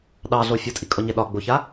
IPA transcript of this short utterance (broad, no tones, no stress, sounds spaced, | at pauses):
ɗ ɑ ɮ o fʲ o tʼ i kʼ ɔ ɲ ɛ ɗ ɒ ɡ͡b o ç a